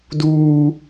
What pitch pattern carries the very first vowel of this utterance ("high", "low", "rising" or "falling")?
high